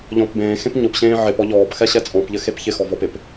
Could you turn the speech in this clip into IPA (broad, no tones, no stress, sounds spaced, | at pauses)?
ʎ ɔ̃ p b ẽː x ẽ p ɲ ʊ p ɕ ẽː ʕ ɪ p ɔ ʎ ɔː p x ɛ ɕ ɛ t͡sʼ ɔ̃ p ʎ ɘ x e p ç ɪ x ɔ v ɔ p ɪ p